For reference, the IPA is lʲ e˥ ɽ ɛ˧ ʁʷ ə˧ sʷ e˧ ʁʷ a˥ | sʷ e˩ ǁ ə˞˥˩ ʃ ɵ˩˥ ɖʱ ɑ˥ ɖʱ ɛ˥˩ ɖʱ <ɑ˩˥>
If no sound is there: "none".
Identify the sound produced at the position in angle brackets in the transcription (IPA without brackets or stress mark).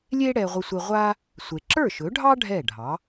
ɑ˩˥